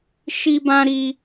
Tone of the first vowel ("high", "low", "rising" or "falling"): high